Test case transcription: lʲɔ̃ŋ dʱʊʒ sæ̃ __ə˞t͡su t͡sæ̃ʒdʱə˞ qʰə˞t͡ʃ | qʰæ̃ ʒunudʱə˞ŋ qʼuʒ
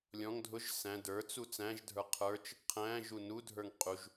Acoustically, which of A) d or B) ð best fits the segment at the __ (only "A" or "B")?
A